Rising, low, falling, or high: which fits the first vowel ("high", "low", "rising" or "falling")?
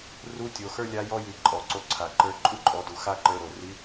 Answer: rising